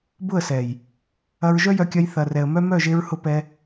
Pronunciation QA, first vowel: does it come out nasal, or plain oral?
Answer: oral